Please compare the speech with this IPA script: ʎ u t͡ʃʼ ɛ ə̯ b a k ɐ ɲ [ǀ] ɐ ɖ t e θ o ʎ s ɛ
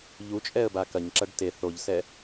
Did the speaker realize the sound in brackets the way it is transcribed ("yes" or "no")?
no